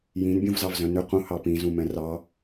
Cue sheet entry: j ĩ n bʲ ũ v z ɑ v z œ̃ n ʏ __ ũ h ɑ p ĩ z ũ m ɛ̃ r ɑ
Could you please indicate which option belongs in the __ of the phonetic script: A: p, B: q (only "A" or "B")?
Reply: B